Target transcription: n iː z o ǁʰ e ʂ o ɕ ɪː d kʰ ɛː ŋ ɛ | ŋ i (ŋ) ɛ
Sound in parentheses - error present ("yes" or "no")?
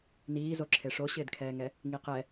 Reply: yes